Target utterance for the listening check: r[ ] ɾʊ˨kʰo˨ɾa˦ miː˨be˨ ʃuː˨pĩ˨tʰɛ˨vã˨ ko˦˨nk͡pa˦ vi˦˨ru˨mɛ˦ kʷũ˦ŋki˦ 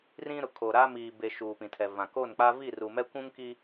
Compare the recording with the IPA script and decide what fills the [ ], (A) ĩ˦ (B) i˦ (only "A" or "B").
A